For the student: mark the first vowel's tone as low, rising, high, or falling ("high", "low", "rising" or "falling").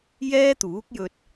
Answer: high